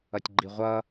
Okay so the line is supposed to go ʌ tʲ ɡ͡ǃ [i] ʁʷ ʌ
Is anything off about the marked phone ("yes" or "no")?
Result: no